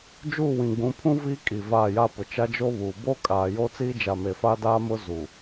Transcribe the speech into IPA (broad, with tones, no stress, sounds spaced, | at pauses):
d͡ʒ uː˦˨ w ĩ˨ ɡ͡b ũ˨˦ pʰ ũ˦ v i˦ kʼ i˨ v aː˦˨ j a˦ p ʊ˨ t͡ʃ a˦ d͡ʒ o˦ β uː˨ b o˦ kʼ aː˨ j o˦ t͡s iː˦ d͡ʒ a˨ m e˨ f a˦ d aː˦ m ʊ˦ z uː˨